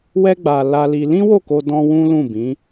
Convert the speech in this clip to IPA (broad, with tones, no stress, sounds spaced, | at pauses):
w ɛ˦ ɡ͡b a˧ l a˧ l i˧ l ĩ˦ w o˦˨ k o˧ d ɔ̃˦ w ũ˦ l ũ˦˨ b ĩ˨˦